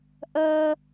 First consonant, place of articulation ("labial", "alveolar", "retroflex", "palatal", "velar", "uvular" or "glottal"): glottal